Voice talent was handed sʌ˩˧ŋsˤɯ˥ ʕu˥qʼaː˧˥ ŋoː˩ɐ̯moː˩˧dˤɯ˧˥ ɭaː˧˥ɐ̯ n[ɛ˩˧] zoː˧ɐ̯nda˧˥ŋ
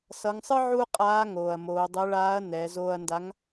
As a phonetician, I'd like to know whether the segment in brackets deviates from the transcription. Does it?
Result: no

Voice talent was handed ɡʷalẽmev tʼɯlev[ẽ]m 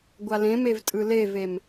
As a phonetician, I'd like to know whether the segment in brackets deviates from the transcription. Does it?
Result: yes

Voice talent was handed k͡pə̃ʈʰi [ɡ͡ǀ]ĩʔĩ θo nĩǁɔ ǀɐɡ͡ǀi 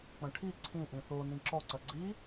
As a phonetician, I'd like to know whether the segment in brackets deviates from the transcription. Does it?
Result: yes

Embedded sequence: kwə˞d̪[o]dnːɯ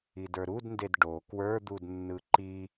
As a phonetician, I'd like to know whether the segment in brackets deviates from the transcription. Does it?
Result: yes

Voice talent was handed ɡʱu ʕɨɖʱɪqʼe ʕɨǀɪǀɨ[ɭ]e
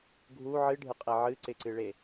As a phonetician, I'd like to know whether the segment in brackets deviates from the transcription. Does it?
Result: no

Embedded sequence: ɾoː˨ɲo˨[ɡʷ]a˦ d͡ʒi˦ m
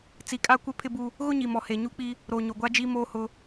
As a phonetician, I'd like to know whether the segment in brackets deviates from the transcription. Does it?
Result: no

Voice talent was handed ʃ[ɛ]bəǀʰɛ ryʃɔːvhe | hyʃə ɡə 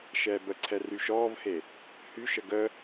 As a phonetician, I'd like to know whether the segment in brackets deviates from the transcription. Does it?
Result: yes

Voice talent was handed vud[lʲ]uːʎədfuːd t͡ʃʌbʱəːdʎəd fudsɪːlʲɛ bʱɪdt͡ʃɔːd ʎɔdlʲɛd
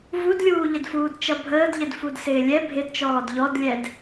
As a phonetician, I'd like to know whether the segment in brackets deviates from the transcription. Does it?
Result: no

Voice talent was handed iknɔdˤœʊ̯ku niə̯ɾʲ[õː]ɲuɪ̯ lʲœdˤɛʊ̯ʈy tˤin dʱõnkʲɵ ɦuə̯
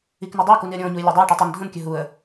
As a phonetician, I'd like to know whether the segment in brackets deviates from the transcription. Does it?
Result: no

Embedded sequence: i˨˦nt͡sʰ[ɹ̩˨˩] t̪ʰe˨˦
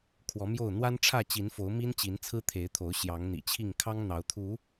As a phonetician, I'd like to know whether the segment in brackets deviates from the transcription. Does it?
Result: yes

